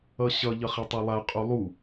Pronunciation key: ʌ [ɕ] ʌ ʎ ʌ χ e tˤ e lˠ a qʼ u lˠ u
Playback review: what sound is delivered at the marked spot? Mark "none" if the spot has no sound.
ɕ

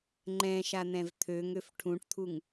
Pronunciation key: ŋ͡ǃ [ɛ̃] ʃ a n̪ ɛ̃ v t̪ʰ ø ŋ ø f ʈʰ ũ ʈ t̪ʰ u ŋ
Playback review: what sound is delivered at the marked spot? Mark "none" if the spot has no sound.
ɛ̃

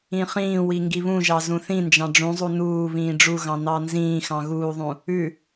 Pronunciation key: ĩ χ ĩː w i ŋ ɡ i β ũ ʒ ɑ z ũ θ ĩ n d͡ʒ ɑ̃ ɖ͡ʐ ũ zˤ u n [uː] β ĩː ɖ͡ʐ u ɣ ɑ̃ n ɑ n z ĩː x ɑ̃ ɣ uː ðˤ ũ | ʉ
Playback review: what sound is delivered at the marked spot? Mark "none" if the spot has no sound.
uː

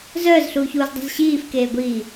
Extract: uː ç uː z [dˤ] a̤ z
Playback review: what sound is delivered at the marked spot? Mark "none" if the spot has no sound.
dˤ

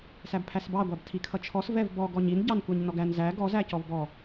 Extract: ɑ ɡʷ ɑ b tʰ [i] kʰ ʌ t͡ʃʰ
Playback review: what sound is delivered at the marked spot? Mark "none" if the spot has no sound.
i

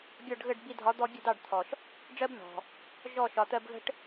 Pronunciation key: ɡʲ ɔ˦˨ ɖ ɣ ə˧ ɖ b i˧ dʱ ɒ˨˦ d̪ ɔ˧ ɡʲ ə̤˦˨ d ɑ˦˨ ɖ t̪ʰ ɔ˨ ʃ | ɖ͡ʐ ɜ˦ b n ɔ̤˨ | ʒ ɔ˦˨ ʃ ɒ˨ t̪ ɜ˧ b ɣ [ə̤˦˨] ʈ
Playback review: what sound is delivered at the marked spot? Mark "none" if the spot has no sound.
ə̤˦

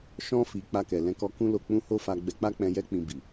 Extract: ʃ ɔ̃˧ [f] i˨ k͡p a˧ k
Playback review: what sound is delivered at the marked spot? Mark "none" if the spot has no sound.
f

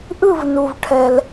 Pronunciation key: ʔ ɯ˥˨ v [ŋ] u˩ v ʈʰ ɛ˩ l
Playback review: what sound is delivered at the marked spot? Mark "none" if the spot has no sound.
n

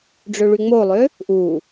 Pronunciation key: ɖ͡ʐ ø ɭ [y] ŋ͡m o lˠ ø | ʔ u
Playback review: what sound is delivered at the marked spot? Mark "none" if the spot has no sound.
y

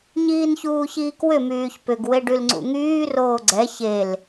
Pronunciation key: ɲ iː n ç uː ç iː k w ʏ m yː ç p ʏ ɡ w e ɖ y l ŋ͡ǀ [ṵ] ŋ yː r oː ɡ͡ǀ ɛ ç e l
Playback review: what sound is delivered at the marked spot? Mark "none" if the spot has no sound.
ṵ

